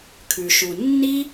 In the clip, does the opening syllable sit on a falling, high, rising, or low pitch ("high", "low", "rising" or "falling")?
low